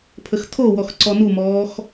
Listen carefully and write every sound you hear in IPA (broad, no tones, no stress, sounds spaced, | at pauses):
pʰ ə x tʰ o w ɔ x ǀ ɔ n u m ɔː x